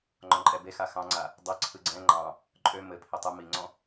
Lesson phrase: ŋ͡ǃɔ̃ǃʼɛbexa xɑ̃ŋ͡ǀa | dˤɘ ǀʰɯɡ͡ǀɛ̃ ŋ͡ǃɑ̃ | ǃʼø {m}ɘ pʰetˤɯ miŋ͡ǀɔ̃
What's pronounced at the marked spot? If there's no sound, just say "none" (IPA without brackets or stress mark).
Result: m